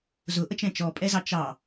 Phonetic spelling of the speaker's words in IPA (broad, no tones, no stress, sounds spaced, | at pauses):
z ʊ ʔ ə t͡ʃ ɛ̃ t͡ʃ ɔ pʼ ɛ z ɑ t͡ʃ ɑ